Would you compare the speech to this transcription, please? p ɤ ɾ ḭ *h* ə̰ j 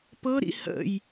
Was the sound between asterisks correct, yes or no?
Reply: yes